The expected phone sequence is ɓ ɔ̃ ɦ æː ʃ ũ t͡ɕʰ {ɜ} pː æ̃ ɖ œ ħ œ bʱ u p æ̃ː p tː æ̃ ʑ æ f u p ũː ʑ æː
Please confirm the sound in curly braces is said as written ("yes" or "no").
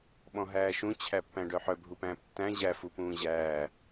no